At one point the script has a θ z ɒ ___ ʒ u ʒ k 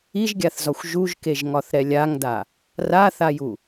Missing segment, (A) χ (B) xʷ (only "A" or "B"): B